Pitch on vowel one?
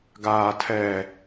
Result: low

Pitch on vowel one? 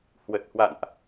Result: low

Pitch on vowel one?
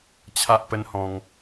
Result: high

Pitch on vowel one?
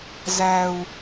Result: low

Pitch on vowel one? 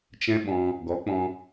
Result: high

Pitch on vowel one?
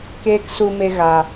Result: high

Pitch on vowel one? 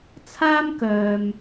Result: high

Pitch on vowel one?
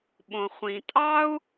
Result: low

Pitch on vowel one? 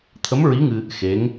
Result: rising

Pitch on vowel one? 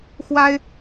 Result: high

